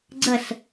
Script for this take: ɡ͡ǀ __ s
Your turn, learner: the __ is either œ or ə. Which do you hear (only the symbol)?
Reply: ə